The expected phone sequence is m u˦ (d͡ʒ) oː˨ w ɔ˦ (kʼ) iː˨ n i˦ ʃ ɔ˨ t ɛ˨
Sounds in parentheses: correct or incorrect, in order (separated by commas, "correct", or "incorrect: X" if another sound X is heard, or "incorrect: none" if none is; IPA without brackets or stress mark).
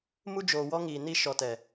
correct, incorrect: ŋ